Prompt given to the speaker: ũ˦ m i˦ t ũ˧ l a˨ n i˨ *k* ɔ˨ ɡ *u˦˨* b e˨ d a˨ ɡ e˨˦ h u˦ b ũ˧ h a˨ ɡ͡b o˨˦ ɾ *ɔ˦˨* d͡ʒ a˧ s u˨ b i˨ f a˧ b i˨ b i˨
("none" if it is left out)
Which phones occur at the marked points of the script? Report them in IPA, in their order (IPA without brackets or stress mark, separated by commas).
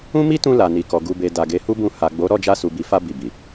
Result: k, u˨, ɔ˦˨